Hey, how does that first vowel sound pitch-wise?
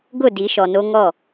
falling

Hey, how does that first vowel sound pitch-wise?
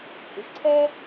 rising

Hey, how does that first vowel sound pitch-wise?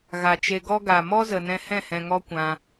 low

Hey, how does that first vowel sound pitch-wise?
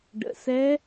low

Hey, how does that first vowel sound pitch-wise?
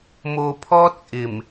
low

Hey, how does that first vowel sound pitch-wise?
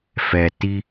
low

